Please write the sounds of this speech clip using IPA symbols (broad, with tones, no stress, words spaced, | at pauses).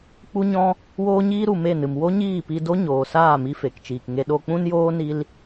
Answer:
k͡pu˦ɲɔ̃˦ | woː˦ɲiː˦ ɾu˨me˦˨nɨ˨m wo˦ɲiː˦˨pi˧do˦ ɲoː˨saː˦˨mi˧ fe˨kt͡ʃiː˨k ŋe˧ ɗo˧k͡pũ˦njoː˦ ni˦l